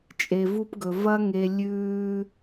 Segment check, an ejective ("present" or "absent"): present